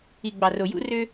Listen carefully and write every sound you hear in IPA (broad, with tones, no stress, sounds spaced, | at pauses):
i˨ ɡ͡b ɑ˨ r o˨ j ṵ˦ r ø˦